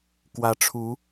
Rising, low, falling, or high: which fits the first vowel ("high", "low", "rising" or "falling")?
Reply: rising